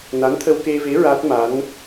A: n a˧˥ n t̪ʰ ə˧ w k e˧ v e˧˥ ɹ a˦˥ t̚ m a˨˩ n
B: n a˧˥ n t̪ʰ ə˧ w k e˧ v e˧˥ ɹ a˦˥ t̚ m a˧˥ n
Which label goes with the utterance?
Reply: B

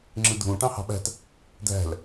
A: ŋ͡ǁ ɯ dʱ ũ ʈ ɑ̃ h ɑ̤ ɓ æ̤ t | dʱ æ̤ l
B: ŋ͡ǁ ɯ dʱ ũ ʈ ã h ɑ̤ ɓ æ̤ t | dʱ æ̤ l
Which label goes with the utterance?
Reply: A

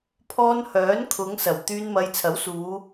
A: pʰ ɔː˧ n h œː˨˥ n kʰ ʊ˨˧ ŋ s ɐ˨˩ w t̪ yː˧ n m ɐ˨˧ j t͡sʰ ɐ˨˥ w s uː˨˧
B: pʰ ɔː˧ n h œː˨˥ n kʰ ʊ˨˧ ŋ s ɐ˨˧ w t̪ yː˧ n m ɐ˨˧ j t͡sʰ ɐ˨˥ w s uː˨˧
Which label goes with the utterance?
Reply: A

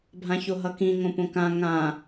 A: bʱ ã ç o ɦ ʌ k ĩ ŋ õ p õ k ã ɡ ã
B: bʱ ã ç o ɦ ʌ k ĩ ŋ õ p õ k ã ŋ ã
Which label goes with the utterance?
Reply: B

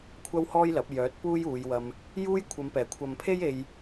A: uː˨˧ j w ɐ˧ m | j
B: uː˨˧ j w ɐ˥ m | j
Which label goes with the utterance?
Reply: A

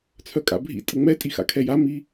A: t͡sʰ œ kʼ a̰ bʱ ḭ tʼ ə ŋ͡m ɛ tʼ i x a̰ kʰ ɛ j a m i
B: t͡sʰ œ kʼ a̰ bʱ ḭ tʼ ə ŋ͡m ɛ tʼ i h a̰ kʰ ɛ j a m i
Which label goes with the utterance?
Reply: A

